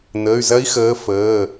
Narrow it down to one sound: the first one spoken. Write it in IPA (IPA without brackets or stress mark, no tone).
n̪